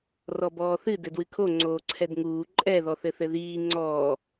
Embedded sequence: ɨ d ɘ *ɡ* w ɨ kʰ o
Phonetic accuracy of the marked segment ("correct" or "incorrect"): incorrect